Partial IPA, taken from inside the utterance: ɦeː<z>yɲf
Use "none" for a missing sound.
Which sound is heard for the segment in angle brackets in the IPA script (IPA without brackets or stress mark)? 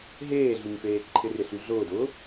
ɮ